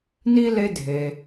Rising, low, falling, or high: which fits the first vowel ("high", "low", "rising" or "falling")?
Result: high